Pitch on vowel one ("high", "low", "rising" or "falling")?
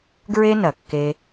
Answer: high